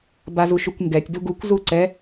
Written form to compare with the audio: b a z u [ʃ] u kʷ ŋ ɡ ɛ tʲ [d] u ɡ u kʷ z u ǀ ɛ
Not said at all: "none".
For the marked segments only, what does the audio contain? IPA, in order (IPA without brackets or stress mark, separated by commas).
ʃ, d